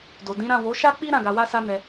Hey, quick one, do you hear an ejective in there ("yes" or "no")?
no